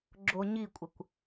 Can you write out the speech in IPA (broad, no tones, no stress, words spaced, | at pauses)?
ɡ͡ǁoɲikʷʼəkʷ